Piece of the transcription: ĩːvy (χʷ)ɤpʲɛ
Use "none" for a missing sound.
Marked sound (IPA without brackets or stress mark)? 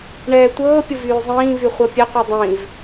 χʷ